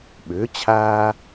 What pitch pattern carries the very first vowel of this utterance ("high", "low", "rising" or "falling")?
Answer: rising